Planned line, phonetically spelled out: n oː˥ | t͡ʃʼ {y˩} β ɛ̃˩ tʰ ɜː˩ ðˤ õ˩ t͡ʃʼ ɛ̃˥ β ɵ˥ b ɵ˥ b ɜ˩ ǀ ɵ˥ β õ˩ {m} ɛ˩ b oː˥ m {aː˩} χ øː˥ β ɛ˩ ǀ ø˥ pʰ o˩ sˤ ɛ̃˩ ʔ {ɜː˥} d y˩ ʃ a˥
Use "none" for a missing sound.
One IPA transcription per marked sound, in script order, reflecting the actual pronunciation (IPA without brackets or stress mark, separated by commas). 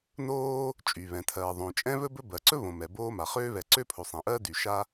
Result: y˩, m, a˩, ɜː˥